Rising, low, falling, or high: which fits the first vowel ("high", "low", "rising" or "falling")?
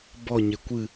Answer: falling